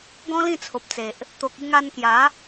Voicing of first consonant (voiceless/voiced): voiced